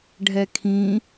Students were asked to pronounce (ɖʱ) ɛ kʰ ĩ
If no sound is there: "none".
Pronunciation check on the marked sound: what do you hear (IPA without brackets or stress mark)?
ɖʱ